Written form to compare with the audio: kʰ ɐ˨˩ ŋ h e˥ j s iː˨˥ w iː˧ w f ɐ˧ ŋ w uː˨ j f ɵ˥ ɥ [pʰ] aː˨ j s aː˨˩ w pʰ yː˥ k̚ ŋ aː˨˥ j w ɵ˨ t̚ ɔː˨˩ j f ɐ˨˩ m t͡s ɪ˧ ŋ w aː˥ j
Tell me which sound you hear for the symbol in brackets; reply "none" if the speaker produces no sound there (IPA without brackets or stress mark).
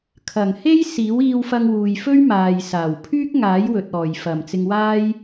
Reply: m